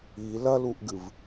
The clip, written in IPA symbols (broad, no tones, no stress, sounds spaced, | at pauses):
i l ɐ l u ʔ ɡ ɨ v